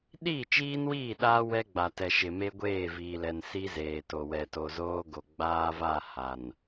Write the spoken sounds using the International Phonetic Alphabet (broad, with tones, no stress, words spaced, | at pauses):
ɗiː˦˨t͡ʃiː˦nwiː˦˨ɗaː˦ wɛ˦ɡ͡ba˨tɛ˨ʃɪ˨ me˦ɡʷeː˦˨viː˨lɛ˨n si˦zeː˨to˨ wɛ˨to˨zoː˦ɡo˨ ɡ͡baː˦va˦˨ ha˨n